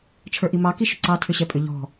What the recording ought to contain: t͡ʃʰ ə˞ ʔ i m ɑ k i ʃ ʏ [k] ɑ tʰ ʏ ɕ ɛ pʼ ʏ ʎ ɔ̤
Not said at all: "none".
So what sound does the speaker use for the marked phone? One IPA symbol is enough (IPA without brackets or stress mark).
ǀ